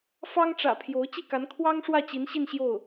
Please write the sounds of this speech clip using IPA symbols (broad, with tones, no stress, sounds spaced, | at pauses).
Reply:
f ɑ˥ ŋ ʈ͡ʂ ä̰˨˩ pʰ j o˧˥ ʊ̯ t͡ɕ i˥˩ k a˧˥ n kʰ w ɑ˥ ŋ ʂ w ä˥˩ t͡ɕ i˧˥ n ɕ i˥˧ n ɕ j o˥˩ ʊ̯